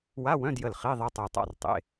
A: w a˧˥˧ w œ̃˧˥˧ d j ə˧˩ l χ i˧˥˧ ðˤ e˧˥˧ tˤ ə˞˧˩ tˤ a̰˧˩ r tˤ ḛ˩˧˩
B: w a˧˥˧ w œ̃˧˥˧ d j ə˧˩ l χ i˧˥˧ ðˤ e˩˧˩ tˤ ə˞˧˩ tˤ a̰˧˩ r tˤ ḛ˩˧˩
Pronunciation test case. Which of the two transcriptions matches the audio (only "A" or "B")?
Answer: A